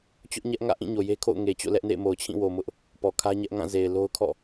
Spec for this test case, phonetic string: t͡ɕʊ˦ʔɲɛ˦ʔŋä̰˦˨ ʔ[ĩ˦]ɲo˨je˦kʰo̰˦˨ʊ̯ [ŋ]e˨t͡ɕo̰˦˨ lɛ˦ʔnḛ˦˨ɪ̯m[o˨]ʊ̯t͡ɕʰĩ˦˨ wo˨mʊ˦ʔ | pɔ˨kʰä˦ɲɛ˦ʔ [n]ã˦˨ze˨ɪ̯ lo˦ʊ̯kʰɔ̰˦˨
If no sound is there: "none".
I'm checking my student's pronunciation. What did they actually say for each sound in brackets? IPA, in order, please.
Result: ĩ˦˨, ŋ, o˨, ŋ

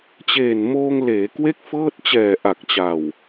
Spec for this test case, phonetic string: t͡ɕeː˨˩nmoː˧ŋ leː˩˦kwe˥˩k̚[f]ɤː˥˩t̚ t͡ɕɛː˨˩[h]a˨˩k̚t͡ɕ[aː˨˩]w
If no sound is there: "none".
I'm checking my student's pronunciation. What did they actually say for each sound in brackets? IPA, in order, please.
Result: f, ʔ, a˨˩

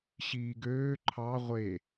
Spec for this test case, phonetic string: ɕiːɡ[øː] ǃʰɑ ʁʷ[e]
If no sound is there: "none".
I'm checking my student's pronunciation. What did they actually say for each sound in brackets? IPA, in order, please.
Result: øː, e

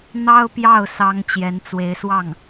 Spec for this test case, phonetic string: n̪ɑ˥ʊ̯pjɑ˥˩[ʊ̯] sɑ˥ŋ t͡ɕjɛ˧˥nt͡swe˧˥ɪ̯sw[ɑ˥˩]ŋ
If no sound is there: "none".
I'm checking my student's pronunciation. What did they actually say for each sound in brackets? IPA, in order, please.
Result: ʊ̯, ɑ˥˩

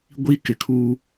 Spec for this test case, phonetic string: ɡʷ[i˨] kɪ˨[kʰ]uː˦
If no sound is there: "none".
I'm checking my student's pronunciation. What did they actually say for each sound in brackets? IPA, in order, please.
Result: i˦, kʰ

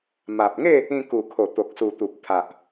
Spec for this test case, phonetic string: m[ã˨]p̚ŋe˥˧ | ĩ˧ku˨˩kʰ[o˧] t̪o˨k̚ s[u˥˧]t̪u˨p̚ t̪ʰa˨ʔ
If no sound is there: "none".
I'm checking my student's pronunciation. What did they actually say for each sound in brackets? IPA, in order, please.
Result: a˨, o˨˩, u˨˩

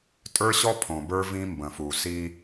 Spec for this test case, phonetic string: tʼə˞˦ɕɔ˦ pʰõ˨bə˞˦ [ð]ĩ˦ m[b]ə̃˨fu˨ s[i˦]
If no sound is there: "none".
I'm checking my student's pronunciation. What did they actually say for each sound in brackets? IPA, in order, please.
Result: v, b, i˦

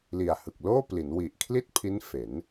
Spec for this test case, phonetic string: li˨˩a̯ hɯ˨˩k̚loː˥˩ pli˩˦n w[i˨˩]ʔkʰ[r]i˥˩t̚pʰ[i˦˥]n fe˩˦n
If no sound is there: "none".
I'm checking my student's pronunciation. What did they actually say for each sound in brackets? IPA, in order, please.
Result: i˨˩, l, i˦˥

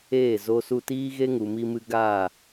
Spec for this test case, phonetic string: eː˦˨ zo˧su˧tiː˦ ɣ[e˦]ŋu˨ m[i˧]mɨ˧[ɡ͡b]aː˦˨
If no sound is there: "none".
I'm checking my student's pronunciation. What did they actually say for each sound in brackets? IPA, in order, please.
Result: e˦, i˧, ɡ

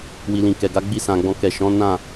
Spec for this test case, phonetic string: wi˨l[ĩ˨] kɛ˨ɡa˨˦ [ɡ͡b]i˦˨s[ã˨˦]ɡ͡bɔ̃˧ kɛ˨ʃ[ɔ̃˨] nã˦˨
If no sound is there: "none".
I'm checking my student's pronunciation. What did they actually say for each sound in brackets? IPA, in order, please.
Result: ĩ˨, ɡ͡b, ã˨, ɔ̃˨˦

